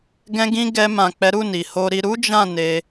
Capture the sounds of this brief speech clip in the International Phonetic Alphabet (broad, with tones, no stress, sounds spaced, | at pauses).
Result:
ɡ ɛ̃˧ ɡ ĩ˧ ɡ ɛ˧ m ã˨ k͡p ɛ˨˦ ɾ u˦˨ n i˨ h o˧ ɾ i˧ ɾ u˦ d͡ʒ ã˦˨ n e˧